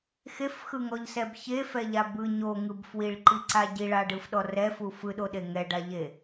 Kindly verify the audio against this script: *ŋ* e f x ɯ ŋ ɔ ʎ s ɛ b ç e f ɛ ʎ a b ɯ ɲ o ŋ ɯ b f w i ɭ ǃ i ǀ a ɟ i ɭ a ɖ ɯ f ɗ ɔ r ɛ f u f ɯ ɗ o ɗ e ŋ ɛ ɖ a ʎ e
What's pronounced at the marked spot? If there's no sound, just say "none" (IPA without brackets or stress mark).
x